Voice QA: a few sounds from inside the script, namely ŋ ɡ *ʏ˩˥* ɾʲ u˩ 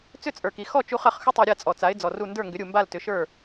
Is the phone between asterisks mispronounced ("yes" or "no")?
no